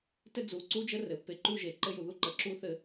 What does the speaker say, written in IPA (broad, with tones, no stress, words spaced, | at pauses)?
tɘ˦d͡zu˨˦ǀu˦d͡ʒə˦ rɘ˨pːe˨ǃu˦ʒe˨ ǃɘ˦ju˨ðu˦ ǃə˨ǁu˦θɘ˦